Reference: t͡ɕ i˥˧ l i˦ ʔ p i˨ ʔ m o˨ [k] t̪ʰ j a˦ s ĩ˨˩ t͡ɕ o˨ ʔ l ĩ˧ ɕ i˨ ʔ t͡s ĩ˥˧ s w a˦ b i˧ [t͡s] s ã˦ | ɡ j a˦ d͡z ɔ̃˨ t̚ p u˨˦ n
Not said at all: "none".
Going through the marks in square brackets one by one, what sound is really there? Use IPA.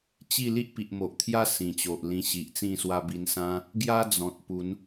ʔ, n

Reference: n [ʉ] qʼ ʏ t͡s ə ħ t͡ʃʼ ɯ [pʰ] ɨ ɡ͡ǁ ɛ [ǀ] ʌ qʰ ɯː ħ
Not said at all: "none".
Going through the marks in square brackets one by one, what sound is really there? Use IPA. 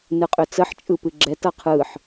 ɨ, p, t

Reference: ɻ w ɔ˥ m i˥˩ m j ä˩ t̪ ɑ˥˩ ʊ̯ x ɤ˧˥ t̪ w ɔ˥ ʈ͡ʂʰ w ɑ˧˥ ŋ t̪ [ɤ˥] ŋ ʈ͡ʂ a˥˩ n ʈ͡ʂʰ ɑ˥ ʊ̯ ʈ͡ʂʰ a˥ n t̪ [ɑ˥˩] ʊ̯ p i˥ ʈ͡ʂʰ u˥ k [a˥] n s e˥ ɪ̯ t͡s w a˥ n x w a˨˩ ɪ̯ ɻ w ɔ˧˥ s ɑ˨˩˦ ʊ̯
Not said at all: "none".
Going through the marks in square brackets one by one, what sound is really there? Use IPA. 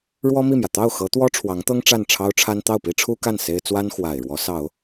ɤ˥, ɑ˥˩, a˥˩

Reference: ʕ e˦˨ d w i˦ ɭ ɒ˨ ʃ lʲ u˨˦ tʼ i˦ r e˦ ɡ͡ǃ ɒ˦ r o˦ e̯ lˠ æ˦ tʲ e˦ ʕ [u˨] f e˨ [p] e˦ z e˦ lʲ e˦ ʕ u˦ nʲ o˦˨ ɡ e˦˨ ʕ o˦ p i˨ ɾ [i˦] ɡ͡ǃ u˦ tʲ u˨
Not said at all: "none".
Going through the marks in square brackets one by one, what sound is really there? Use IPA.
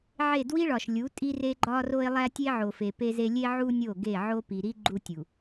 o˨, p, i˦

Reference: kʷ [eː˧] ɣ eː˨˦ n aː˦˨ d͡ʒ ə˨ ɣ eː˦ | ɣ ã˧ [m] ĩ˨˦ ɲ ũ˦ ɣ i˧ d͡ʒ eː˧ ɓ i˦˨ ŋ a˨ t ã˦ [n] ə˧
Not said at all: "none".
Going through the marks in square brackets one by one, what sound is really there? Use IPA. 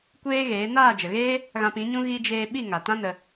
eː˦, p, n

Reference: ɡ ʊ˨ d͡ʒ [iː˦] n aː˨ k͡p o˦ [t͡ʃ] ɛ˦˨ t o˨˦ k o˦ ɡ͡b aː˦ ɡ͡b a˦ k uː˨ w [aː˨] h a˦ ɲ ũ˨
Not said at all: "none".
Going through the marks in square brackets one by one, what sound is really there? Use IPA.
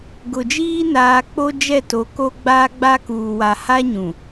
iː˦, d͡ʒ, a˨

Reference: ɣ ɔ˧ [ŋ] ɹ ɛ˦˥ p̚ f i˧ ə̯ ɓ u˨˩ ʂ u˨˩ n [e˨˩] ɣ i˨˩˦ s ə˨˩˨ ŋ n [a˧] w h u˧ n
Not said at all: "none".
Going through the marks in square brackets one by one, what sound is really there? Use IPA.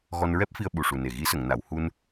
n, e˨˩, a˨˩˨

